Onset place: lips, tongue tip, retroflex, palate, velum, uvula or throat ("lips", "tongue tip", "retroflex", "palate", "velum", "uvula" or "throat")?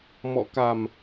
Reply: lips